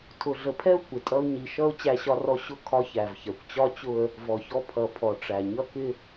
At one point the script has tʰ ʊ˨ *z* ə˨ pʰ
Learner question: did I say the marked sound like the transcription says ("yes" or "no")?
no